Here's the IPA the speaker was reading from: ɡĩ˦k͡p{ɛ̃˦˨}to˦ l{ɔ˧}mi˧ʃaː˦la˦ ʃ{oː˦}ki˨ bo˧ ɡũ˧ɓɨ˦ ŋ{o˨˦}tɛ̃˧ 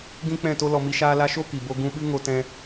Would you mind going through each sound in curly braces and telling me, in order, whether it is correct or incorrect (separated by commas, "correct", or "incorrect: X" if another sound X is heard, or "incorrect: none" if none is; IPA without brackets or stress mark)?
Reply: correct, correct, incorrect: o˦, incorrect: o˧